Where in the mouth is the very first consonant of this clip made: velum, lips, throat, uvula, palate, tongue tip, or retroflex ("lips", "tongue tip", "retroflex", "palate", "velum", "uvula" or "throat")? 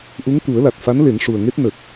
throat